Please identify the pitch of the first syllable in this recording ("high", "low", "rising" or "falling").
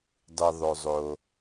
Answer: low